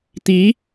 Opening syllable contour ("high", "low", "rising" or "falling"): rising